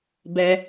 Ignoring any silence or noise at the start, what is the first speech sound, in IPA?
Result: b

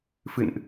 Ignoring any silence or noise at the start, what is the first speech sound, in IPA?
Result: f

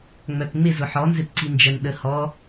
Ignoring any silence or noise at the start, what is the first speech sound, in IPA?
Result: ŋ͡m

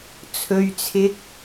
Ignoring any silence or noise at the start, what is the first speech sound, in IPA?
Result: t͡sʰ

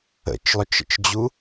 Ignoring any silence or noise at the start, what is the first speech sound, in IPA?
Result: ə̰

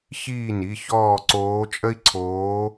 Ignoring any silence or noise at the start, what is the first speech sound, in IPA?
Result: ç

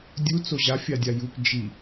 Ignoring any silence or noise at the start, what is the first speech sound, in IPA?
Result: dʲ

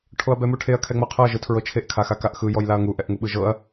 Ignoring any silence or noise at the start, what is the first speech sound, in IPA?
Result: ʈʰ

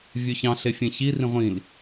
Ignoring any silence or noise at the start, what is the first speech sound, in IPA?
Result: vʲ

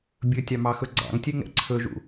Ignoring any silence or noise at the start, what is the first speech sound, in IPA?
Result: bʲ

